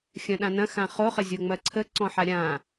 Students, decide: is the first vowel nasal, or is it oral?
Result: nasal